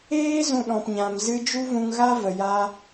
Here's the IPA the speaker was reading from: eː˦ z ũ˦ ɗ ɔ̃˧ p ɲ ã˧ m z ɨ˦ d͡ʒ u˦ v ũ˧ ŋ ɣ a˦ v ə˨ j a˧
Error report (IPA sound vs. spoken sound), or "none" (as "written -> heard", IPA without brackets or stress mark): none